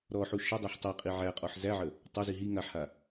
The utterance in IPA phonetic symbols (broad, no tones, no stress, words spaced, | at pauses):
ɾɔħu ʃə dˤiħtˤiqʼi ʕæqʼɔħ zæʕə | tˤazi ɦi ŋaħha